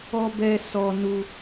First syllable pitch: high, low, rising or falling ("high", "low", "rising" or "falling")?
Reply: high